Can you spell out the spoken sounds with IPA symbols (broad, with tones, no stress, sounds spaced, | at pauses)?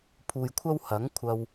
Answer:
pʰ uː˨ j kʷʰ ɐ˥ w h ɐ˨˥ ŋ kʷʰ ɐ˧ w